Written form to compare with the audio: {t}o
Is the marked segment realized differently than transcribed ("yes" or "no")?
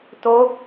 no